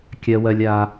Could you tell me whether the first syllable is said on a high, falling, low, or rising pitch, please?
high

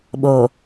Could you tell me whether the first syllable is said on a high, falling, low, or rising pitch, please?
low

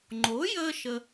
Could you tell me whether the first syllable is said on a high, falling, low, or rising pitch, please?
rising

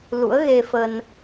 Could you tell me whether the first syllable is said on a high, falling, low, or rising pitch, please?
rising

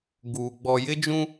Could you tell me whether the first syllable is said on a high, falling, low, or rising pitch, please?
low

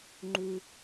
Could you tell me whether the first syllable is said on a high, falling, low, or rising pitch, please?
low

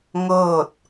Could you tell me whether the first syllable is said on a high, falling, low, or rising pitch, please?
falling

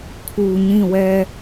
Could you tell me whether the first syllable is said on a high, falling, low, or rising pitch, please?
low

